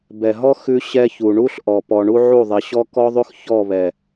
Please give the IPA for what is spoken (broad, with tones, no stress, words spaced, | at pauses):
bɛ˨ɦɔ˦ xʉ˦ɕɛ˦çu˨ ɳu˦ɬʔɔ˨pɔ˨ ɳu˦ʕu˦˨ðˤɛ˨ ɕɔ˦kɔ˦ðˤʉ˦x çɔ˦˨βɛ˨